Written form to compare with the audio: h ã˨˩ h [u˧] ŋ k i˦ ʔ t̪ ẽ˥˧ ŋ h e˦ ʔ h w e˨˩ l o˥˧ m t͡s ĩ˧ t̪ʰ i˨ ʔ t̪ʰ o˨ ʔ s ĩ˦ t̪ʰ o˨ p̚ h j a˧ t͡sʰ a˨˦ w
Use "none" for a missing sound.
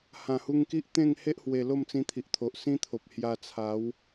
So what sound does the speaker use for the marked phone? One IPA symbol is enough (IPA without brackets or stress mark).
u˧